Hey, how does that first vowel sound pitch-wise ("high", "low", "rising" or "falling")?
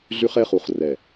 high